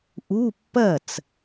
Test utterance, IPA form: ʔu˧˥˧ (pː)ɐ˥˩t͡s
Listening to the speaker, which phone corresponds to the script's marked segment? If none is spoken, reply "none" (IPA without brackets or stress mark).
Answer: pː